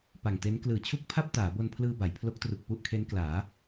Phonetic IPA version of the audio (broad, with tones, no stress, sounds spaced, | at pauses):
p a˨˩ ŋ t e˦˥ n k l ɯː˨˩ t͡ɕʰ u˥˩ k̚ pʰ a˥˩ p̚ t aː˩˦ b o˧ n pʰ l ɯː˧ b a˩˦ j pʰ l o˦˥ k̚ t r u˨˩ k̚ p u˥˩ ʔ kʰ e˦˥ n k l aː˩˦